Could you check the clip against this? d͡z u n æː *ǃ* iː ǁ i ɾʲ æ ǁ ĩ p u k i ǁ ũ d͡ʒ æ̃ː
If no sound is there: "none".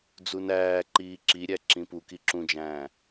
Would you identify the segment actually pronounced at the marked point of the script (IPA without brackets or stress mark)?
ǃ